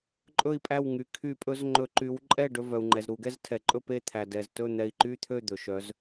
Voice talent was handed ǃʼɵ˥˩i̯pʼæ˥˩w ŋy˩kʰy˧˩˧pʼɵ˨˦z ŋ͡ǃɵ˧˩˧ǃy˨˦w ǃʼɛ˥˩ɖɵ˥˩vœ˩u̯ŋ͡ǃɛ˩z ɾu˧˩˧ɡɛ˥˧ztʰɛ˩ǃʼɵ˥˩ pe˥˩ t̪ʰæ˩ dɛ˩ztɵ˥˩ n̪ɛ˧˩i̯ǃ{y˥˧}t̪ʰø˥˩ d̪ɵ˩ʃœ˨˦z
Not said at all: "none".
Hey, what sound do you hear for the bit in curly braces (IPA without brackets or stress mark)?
y˥˧